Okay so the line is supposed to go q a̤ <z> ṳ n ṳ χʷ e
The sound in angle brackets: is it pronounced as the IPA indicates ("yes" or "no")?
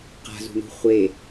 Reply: yes